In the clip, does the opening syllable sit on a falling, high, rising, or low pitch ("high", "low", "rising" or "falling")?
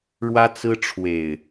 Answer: high